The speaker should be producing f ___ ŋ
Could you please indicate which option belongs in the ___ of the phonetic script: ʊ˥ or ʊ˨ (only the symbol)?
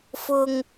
ʊ˨